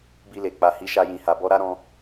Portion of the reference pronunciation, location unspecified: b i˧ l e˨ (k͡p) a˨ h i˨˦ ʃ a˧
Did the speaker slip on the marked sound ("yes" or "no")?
no